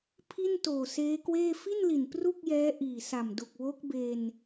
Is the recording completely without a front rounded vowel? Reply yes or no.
yes